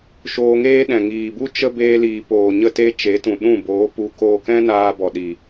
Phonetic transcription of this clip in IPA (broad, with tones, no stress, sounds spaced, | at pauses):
ʃ oː˧ ŋ eː˦ ɗ ɛ̃˨ ŋ iː˨ b u˦ t͡ʃ ə˦ b eː˧ l iː˨ p oː˨ ɲ ə˦ t e˦ t͡ʃ e˨˦ t ũ˨ ɗ ũ˦˨ b oː˨˦ p u˧ k oː˧ k ɛ̃˦ n aː˧ b ɔ˨ ɗ i˨